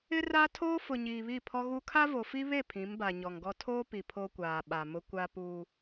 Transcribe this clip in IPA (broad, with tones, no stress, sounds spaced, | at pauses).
ɪ˦ r a˦ tʰ oː˦ f ʊ˨ ɲ iː˨ β i˦˨ pʰ ɔ˦ ɣ u˦ kʰ a˦ v o˨ f i˦ β e˦˨ pʰ ĩ˨˦ m b a˨ ɲ ɔ˨ ŋ ɡ ɔ˦ tʰ oː˦ p i˨ pʰ o˦ kʷ aː˨ ɓ a˨ m ʊ˦ kʷ a˦ p uː˦